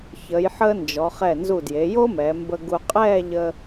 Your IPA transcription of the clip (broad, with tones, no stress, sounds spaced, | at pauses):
ç ə˩˧ j ħ əː˧ n d͡ʒ ɔ˩˧ χ ɛ˧˩ n z u˧˩ d j e˩˧ j o˥ m ɛː˩˧ m b ə˧ ɡ u˧ qʼ ɛː˥˧ ʎ ə˧